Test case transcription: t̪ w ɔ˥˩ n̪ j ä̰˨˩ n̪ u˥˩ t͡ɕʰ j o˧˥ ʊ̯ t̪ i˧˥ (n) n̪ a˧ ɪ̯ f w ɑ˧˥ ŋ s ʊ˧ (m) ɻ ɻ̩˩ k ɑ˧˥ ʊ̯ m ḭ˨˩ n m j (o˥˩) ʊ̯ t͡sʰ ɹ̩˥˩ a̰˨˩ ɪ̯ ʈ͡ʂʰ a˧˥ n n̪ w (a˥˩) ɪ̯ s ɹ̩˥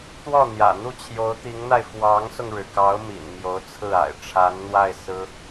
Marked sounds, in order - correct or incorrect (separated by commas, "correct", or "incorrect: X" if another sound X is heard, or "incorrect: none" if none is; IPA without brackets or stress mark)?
incorrect: ŋ, incorrect: ŋ, incorrect: o˧˥, correct